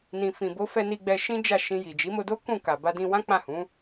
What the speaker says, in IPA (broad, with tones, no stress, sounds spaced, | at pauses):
n ĩ˨ f ĩ˨ b o˨˦ f ɛ˧ n i˧ ɡ͡b ɛ˧ ʃ ĩ˦ d͡ʒ a˦˨ ʃ ĩ˧ j i˨ d͡ʒ i˨˦ m o˧ d o˦ k ũ˦˨ k a˨ b a˧ d ĩ˧ w ã˦ k͡p ã˦˨ h ũ˨˦